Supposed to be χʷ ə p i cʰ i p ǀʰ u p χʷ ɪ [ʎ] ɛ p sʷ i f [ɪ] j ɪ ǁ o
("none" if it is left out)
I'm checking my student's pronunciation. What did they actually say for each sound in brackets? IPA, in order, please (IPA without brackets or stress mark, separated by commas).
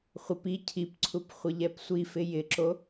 ʎ, ɪ